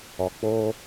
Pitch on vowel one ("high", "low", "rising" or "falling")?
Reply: low